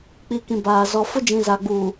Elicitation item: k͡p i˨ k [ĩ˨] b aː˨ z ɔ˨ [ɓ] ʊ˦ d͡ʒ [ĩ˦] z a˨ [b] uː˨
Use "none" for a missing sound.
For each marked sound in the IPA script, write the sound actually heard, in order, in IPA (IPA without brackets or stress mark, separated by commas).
ĩ˨, f, ĩ˨, ɡ͡b